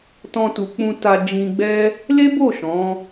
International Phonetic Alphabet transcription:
t ɔ̃˧ t u˨ k͡p ũ˧ t a˧ d͡ʒ ĩ˧ ɡ͡b ɛ˦ | l e˦ b o˦˨ ʃ ɔ̃˨˦

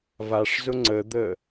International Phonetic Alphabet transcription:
v a ʂ z ʊ ŋ͡ǀ ə d̪ ə

